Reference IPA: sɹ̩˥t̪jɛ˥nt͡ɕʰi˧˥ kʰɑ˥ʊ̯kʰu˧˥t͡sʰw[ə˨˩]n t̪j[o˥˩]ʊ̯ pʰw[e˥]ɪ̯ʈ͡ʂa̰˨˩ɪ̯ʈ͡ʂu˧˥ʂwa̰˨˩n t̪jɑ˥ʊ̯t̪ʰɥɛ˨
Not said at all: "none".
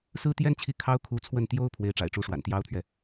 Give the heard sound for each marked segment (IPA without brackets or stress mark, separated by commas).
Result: ə˥˩, o˥, e˧˥